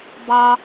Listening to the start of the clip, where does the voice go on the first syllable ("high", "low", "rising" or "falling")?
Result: high